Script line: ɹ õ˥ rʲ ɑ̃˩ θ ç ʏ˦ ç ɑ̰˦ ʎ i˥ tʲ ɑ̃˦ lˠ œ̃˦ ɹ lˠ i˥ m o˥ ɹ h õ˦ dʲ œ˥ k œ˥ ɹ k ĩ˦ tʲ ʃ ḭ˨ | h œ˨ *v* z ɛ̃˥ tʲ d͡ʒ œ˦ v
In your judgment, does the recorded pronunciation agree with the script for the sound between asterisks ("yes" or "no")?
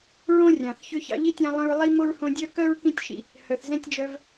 no